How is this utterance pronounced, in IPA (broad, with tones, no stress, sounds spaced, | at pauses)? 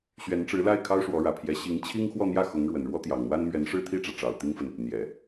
ɕ ɥ ɛ˧˥ n ʈ͡ʂ ɻ̩˧˥ l a˥˩ ɪ̯ kʰ ɑ˥ ʊ̯ ʂ w ɔ˧˥ ɻ ä˨˩ pʰ j ɛ˧˥ ɕ i˧˥ ŋ t͡ɕʰ i˥ ŋ x w ɔ˥˧ n̪ j ä˥˩ x ʊ˧˥ ŋ ɻ w ə˨˩ n ɻ w ɔ˥ t̪ j ɑ˨˩ ŋ n̪ w a˥ n m ɥ ɛ˧˥ n ʂ ɻ̩˥˧ t̪ʰ i˥˩ ʈ͡ʂ ä˩ ʈ͡ʂ ɑ˨˩ ʊ̯ t̪ i˥ ŋ f ə˨ n | n̪ j ɛ˨˩˦